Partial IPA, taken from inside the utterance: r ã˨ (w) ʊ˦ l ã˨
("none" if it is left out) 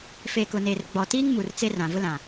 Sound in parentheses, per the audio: v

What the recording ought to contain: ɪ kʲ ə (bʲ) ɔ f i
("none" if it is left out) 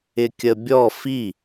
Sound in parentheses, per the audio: bʲ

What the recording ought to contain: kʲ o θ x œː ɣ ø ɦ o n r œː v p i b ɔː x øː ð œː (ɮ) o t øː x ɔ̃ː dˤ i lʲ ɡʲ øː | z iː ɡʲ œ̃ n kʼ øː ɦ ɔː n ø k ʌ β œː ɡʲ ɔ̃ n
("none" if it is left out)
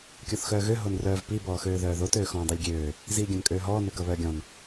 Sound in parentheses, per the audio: ð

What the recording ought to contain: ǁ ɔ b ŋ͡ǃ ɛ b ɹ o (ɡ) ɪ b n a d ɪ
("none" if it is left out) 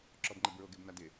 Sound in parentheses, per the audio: ɡ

